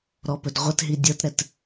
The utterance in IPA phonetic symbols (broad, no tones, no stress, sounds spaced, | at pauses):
ɾ ɔ p ɵ d ʁʷ ə t ɦ i dʲ ɤ t ɾ ɛ t